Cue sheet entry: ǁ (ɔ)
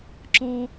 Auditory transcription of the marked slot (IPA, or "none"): ɔ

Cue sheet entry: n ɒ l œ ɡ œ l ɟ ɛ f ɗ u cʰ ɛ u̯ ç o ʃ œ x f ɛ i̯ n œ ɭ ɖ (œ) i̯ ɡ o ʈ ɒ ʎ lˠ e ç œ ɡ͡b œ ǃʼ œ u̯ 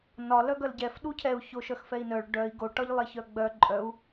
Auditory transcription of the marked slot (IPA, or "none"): œ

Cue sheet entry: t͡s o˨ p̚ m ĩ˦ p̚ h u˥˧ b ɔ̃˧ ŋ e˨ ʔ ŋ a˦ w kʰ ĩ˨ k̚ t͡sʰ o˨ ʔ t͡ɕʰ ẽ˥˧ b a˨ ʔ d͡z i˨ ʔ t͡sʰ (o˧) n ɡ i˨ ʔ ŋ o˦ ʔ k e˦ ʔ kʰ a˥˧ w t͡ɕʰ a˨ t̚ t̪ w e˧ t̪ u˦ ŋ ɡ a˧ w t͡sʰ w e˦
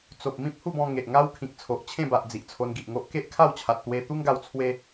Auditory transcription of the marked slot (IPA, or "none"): o˧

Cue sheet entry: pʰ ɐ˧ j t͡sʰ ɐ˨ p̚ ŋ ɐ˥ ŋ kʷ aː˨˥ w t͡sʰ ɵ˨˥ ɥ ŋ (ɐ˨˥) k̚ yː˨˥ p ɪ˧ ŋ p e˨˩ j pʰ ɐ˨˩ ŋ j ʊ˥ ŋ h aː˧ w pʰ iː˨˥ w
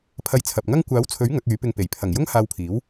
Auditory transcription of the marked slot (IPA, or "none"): ɐ˨˥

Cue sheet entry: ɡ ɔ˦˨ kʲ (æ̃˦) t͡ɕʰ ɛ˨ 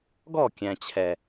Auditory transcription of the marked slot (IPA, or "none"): æ̃˨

